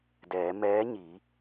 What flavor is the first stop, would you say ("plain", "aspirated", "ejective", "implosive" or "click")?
plain